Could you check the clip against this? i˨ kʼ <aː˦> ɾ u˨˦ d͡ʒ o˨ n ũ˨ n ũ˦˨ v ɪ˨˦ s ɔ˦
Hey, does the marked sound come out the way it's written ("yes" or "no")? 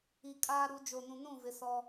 yes